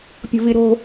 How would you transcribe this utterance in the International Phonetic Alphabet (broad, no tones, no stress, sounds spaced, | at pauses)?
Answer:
pʲ o̤ v i ɾ o̤